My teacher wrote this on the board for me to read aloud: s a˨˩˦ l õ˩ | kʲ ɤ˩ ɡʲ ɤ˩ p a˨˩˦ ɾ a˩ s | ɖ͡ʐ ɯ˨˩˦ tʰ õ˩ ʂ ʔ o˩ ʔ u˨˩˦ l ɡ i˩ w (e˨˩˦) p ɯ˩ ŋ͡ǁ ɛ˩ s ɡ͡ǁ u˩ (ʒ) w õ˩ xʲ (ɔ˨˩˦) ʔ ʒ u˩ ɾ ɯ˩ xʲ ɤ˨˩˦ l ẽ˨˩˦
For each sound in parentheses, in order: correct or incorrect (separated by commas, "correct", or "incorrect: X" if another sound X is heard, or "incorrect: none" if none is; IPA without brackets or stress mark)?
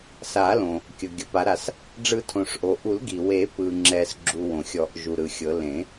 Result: correct, incorrect: none, correct